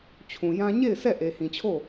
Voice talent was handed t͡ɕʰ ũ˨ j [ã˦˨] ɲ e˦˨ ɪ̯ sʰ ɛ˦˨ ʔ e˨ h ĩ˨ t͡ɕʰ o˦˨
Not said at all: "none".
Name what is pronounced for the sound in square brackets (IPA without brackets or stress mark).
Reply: ã˦